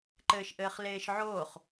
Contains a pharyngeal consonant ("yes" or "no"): yes